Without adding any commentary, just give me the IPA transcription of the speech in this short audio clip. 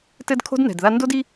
t ɘ˦ d kʰ o̤˦ d n ɛ̤˨ d ð a˦ n d o˦ d i˦

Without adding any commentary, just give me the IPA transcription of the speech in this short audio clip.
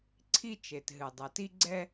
ǀʰ i˧ t͡ʃ e˩ t ɦ ɨ˩ dˤ ɛ˩ t i˧ ɡ͡ǀ ɛ˧

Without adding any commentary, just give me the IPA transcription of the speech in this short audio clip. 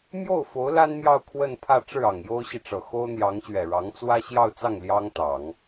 m j o˥˩ ʊ̯ f o˧˥ ʊ̯ l a˥ n m j ɑ˥˧ ʊ̯ kʰ w ə˥˧ n pʰ ä˥˧ ʈ͡ʂ ɻ̩˥˩ ɑ˨˩ ŋ j o˥ ʊ̯ ɕ i˨ ʈ͡ʂ ɤ˨˩ x o˥ ʊ̯ n̪ j ɑ˧˥ ŋ ɕ ɥ ɛ˨˩ ɻ ɑ˧˥ ŋ t͡s w ä˥ ɕ j ɑ˥˧ ʊ̯ t͡s ɑ˥˩ ŋ l j ɑ˥ ŋ t̪ ɑ˨˩˦ ŋ

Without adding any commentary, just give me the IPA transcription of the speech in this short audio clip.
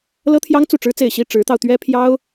l ɤ˥ t̪ʰ j ɑ˥ ŋ t͡s u˥˩ ʈ͡ʂ ɻ̩˥ t͡s e˥˩ ɪ̯ ɕ i˥ ʈ͡ʂ ɻ̩˧˥ t̪ ɑ˧ ʊ̯ t̪ ɥ ɛ˥ pʰ j ɑ˥ ʊ̯

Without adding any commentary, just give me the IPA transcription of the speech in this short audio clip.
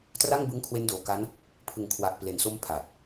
t r a˥˩ ŋ b ɯ˦˥ ŋ kʰ w e˦˥ n d oː˨˩ k a˦˥ n | pʰ ɯ˨˩ ŋ kʰ w a˨˩ ʔ p l e˨˩ n s o˦˥ m pʰ a˨˩ t̚

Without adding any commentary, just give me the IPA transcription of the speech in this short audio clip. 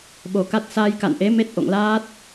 ɓ o˨˩ k a˦˥ t̚ s aː˧ j k a̰˧˨ n ʔ e˨˦ m e˦˥ t̚ ʔ o̰˧˨ ŋ l aː˦˥ t̚

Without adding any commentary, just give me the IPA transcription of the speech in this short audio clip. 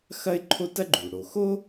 x ɐ˥ ɪ̯ ǃʰ o˥ t ɐ˥ ɡ͡ǃ u˩ ɽ o˩ x o˥

